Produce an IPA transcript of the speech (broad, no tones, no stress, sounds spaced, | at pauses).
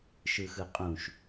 ʃ ɯ x ɯ qʼ ũ ʃ